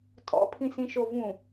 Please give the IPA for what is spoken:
tʼ ɔ̰ pʰ ĩ s ĩ ʃ o v ũ

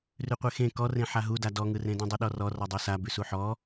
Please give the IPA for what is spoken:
r ʉ qʷ e x ẽ k ɔ r ẽ ħ a ɦ u d a d ɔ ŋ ɯ r ẽ d ũ dˤ u ɗ ɔ r ɔ r ɔ dˤ u s a b ʉ s u ħ ɔ

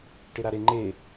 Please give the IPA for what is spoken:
ʈ ɪ ɾ a ɾ e ŋ͡ǃ e

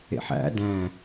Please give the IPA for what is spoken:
ḛ ħ æ̰ d æ̃

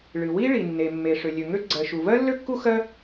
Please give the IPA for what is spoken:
ɭ ɨ˩ w i˥ ɭ i˩ nː e˩ mː e˩ ʂ ø˩ lʲ ø˩ ŋ ø˥ ɡ͡ǀ ɜ˩ ʃ u˩ v ɜ˥ lː ø˥ kː u˥ x ɜ˥

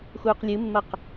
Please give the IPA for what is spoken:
x uː q lʲ ɨ mː ɐ q

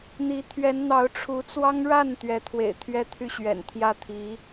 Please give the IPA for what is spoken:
n̪ i˧˥ t̪ʰ ɥ ɛ˧˥ n n̪ ɑ˧˥ ʊ̯ ʈ͡ʂʰ u˧˥ t͡s w ɑ˥ ŋ ɻ a˥˩ n t̪ ɥ ɛ˧˥ t̪ʰ w ḛ˨˩ ɪ̯ t̪ʰ ɥ ɛ˥˧ t̪ʰ y˥˩ ɕ ɥ ɛ̰˨˩ n t̪ʰ j ä˥˩ t̪ʰ i˧˥

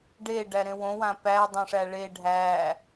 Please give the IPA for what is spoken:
ɖ e ɖ æ ɾ ẽ w õ w ã p æ dˤ õ ʂ æ ɭ e ɖʱ æ

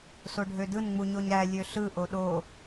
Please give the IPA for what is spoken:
s o ɖʱ ø d ɯ n ŋ͡m u ɲ o ɲ ɾ æ lʲ ø ɬ ɯ ʔ o ɗ o

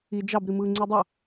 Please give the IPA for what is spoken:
i d͡ʒ ɑ b ɾ i m ɯː ŋ͡ǀ i dˤ o

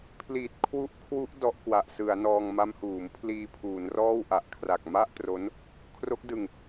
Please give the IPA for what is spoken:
pʰ l iː˨˩ t̚ kʰ w u˦˥ ʔ kʰ w u˦˥ ʔ d ɔ˦˥ ʔ k w a˨˩ ʔ s ɯ˩˦ a̯ n ɔː˧ ŋ m a˦˥ m h uː˩˦ m pʰ l iː˧ pʰ uː˩˦ n r ɔː˥˩ w ʔ a˨˩ ʔ kʰ r a˨˩ k̚ m a˥˩ ʔ t r o˦˥ n | kʰ r o˦˥ k̚ d ɯ˨˩ ŋ

